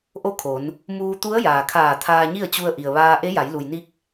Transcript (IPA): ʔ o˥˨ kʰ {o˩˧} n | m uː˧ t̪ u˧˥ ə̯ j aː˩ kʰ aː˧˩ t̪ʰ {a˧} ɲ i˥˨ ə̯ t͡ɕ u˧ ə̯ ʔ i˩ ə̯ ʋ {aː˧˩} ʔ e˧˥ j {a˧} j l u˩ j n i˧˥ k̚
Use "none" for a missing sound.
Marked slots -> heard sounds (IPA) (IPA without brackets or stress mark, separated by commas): o˩˧, aː˧, aː˧, a˩˧